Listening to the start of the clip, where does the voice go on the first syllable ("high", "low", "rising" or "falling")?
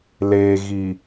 low